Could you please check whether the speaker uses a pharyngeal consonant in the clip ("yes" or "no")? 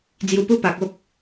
no